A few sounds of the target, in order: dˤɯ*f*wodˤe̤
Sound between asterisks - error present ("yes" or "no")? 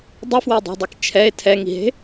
no